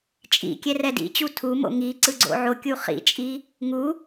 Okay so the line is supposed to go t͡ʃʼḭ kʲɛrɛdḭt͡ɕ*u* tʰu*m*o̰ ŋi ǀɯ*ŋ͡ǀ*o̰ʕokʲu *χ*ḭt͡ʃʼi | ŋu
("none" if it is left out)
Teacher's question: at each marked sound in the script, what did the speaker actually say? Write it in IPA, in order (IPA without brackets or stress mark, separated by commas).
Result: u, m, ɡ͡ǀ, χ